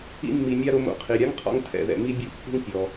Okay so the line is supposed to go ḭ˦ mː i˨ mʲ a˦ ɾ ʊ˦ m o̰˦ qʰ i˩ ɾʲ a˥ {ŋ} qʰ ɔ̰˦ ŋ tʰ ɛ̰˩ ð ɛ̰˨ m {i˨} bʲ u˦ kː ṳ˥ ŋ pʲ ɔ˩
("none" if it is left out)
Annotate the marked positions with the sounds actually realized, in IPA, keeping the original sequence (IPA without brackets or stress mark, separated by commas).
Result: ŋ, i˦